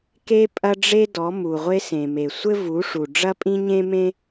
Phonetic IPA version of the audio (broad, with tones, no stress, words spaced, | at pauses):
ke˦ pʼɐ˦ɖ͡ʐe˦dɔ˨˦ mu˨ʁʷe˧sẽ˨me˨ sʷɘ˦vu˨˦ʂu˨ ɖ͡ʐɐ˦pʼĩ˦ɲẽ˦mẽ˦